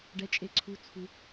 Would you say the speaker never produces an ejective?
no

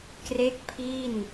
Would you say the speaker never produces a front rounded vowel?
yes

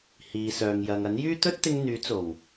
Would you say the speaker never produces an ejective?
yes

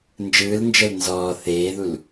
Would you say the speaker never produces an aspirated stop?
yes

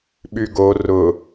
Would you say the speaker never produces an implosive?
no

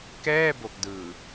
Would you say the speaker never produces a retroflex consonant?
yes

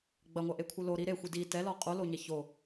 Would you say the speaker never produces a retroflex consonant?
yes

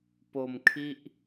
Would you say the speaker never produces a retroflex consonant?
yes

